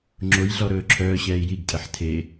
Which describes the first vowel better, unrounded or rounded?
rounded